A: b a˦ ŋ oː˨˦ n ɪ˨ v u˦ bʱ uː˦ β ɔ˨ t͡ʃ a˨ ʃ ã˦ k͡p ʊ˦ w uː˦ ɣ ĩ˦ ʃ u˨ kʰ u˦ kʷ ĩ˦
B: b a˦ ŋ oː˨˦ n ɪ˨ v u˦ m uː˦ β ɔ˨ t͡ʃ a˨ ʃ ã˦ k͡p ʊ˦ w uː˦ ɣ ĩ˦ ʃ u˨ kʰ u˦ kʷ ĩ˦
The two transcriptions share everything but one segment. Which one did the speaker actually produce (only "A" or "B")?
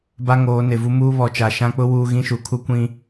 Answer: B